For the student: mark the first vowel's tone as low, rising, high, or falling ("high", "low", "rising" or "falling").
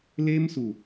high